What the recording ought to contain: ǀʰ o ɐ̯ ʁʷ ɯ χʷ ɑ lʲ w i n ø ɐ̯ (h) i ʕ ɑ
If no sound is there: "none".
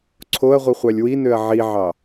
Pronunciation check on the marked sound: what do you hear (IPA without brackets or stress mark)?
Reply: ʕ